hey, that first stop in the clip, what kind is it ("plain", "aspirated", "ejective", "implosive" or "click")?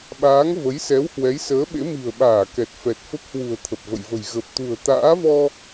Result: implosive